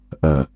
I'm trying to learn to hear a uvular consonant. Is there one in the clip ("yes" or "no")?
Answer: no